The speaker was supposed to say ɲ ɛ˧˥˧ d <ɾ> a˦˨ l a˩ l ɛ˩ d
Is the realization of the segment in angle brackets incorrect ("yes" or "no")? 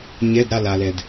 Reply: no